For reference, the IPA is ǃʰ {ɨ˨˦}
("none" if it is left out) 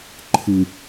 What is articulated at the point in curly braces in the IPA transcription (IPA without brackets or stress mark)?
ɨ˨